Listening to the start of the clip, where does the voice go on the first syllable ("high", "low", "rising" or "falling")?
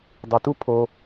low